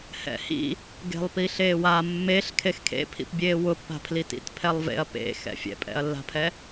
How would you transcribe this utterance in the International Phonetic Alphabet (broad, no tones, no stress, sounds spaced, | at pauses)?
h ɛ̰ h ḭ | ɡ e̤ lˠ p i ɬ eː w a mː e ɬ kʰ e x kʰ ḛ pʰ ḭ p bʲ eː w ʊ pː a̤ pʰ l i t ḭ t pʰ ɛ lˠ v ḛ ɐ̯ p ḛ x ɛ̰ fʲ ɛ̰ pʼ ɛ̰ ɐ̯ lː a̤ pʰ ɛ